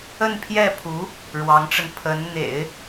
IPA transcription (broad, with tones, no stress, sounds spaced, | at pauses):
ə˥˧ n pʰ j ɛ˥˩ pʰ u˧˥ | ɻ w ɑ˧˥ ŋ ʈ͡ʂ ə˧ n pʰ ə˧˥ n n̪ ḛ˨˩˦ ɪ̯